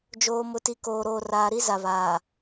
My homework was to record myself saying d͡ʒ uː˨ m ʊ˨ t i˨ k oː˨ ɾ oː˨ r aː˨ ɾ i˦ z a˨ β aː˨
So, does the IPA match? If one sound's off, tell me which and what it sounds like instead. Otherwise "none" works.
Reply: uː˨ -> oː˨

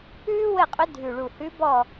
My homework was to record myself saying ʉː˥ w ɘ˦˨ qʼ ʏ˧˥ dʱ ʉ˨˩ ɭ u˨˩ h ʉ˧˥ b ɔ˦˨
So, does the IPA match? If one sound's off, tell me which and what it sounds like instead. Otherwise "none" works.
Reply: none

